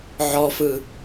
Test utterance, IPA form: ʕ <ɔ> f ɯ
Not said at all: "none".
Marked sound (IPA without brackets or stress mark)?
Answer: ɔ